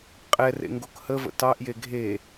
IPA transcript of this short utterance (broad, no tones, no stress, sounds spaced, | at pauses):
qʼ ɛ r ḛ ŋ ɡ o k h ə v ə̰ t ɑ ʔ j e ɡʱ e